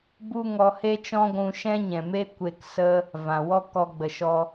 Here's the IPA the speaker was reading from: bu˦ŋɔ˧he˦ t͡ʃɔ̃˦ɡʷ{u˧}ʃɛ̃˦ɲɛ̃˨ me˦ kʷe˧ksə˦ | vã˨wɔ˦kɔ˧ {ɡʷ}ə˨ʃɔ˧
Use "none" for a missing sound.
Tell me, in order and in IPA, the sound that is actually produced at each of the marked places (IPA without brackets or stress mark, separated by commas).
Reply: ũ˧, ɡ͡b